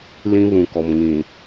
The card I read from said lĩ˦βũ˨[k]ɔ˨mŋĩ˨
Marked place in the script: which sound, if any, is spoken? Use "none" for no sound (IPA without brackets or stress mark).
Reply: k